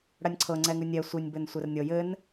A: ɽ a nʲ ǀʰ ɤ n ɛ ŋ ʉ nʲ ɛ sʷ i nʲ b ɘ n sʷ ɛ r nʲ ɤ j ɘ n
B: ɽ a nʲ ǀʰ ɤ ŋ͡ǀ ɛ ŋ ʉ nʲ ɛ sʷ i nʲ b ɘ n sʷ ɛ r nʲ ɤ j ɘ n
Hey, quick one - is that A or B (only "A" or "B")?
B